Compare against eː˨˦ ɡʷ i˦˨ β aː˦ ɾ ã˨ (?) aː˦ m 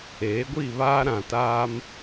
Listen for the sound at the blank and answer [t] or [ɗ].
t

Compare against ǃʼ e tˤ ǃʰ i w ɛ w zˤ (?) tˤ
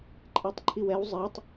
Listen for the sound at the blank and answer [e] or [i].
e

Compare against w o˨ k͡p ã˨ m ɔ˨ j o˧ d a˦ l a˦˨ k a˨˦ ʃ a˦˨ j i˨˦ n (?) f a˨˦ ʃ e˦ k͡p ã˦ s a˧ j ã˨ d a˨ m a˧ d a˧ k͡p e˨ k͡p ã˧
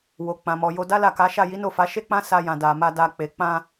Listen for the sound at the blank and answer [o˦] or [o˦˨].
o˦˨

